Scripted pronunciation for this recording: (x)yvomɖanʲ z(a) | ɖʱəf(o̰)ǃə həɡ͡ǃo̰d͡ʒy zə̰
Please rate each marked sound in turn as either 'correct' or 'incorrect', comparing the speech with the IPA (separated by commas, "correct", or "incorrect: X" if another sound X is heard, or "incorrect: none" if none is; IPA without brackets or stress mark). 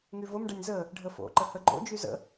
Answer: incorrect: ŋ, incorrect: ə, correct